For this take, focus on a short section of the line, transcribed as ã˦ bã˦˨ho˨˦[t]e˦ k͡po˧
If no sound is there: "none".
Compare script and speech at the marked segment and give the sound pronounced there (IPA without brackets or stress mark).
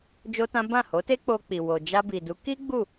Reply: t